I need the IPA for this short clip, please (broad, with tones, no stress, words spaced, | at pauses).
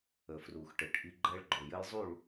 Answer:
ə˨fru˨x ʈɘ˨ʈʔi˦ ɡ͡ǃɛ˦ɭɡ͡ǃo˨jɘ˦jzˤu˦˨ɭ